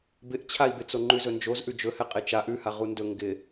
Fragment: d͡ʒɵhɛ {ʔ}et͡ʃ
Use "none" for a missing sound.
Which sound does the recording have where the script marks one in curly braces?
qʼ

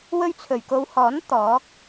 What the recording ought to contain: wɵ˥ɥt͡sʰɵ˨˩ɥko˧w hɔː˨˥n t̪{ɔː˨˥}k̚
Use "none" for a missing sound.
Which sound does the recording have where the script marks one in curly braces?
ɔː˨˥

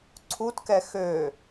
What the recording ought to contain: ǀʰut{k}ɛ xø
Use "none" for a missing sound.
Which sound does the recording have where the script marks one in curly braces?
k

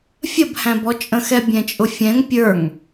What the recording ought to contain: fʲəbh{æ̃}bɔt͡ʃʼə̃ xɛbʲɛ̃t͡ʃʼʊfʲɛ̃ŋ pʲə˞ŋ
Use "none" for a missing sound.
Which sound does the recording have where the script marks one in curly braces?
æ̃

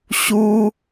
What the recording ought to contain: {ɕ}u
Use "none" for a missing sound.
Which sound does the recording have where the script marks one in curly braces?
ɕ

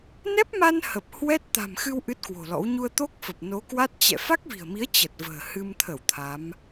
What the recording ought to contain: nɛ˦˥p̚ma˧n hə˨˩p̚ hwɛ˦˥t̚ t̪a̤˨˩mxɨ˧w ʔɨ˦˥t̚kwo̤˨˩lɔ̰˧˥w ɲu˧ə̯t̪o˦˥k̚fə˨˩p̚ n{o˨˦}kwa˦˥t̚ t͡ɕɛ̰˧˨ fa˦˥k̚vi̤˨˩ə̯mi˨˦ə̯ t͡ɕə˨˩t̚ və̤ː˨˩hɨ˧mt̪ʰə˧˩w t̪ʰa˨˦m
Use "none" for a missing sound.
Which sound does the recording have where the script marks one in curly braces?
o˨˦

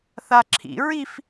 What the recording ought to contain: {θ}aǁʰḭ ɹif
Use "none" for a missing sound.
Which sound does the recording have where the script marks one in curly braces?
θ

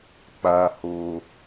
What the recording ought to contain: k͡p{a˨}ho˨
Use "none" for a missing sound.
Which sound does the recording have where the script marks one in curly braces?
a˨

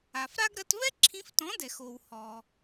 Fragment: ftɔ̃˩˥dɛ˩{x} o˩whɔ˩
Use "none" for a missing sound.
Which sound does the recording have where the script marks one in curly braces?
x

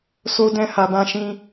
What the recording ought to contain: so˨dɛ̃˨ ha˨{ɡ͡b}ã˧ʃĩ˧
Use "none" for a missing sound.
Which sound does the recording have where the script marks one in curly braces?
b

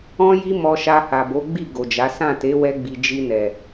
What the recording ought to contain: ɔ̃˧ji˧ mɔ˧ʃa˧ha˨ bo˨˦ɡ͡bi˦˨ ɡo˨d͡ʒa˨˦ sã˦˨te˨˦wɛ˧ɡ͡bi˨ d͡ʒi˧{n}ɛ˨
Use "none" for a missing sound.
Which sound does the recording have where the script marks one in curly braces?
n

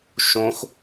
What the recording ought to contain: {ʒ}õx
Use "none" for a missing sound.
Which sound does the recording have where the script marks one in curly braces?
ʃ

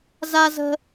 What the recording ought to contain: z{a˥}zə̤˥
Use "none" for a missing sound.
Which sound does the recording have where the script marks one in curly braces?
a˥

